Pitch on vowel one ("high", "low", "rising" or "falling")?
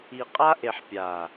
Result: low